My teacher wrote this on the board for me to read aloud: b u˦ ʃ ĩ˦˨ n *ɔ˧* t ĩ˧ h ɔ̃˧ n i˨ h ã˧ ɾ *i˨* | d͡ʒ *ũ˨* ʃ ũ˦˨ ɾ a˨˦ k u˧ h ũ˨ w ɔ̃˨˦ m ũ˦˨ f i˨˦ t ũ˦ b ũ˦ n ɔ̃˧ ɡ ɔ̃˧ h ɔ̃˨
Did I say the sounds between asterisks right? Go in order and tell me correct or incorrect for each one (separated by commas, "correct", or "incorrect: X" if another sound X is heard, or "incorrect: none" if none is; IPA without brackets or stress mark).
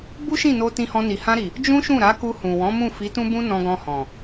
incorrect: o˧, correct, incorrect: ũ˦